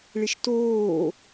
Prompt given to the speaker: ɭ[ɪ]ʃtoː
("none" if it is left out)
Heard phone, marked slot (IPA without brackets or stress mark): ɪ